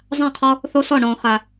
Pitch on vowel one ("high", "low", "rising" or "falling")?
falling